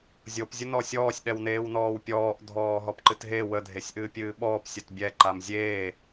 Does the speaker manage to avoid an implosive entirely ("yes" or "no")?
no